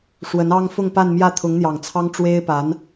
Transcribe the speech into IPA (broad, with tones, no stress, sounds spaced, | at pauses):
ʂ w ə˧˥ n ɑ˥ ŋ f ʊ˥˧ ŋ p a˥˧ n m j ä˥˩ t̪ʰ ʊ˧˥ ŋ n̪ j ɑ˨˩ ŋ t͡sʰ ɑ˥ ŋ ʈ͡ʂ w e˥ ɪ̯ p a˧˥ n